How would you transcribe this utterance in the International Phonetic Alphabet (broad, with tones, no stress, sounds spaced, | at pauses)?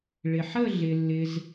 ɭ ɪ˩ ħ ə˥˧ ɮ ɪ˩ lː ɪ˩ z